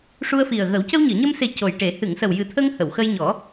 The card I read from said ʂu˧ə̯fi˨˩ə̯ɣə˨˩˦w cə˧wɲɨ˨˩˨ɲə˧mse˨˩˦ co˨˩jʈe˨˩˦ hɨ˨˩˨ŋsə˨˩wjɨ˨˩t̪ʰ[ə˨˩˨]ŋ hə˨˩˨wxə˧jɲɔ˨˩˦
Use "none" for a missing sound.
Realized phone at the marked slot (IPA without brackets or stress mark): ə˧